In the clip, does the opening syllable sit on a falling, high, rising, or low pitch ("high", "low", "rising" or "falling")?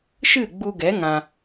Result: falling